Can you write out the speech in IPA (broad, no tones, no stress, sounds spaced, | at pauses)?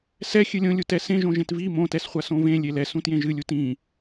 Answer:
s ɛ xʲ ɨ lʲ õ lʲ u t ɛ s ẽ ʒ õ ʒ ẽ t v i m õ t ɛ s χʷ a s õ v ẽ lʲ e l ɛ s ũ t j ẽ ʒ ɨ lʲ u t ĩ